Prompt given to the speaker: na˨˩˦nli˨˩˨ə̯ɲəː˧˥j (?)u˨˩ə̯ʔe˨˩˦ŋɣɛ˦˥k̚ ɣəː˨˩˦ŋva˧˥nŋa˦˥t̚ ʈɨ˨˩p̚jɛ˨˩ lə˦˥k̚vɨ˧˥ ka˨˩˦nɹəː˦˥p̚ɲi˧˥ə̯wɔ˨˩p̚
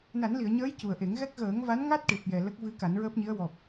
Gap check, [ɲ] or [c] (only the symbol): c